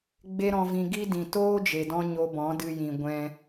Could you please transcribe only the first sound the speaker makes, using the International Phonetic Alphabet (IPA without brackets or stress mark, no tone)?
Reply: ɡ͡b